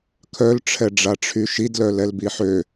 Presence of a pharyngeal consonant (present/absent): present